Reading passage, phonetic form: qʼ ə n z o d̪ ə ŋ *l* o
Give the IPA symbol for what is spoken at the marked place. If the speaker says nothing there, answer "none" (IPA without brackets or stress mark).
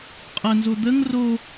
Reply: r